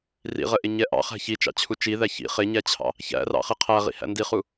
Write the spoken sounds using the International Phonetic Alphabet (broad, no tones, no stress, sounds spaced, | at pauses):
r ḭ ʁ ə ʔ ɪ ɲ ɛ ʔ ɑ̰ χ æ̤ ç i t͡ʃ ɑ̰ t͡ɕʰ u t͡ʃ i ð æ ç ḭ χ ɪ ɲ æ t͡ɕʰ ɑ̰ | ç æ̰ r ɑ̰ χ i qʰ æ ʁ ḭ h æ̰ n d i χ u